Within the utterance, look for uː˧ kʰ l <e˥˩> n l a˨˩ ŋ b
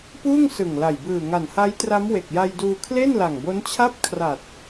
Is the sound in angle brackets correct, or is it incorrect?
correct